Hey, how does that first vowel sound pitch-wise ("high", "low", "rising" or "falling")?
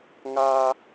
high